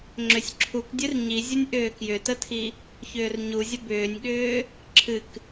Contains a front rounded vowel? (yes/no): yes